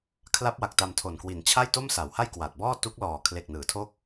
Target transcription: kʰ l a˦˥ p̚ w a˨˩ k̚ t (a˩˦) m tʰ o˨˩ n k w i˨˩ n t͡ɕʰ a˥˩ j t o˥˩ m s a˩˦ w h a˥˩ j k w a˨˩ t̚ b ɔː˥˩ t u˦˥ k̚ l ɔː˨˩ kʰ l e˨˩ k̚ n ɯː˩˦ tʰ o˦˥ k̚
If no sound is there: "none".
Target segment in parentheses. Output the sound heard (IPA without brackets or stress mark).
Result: a˧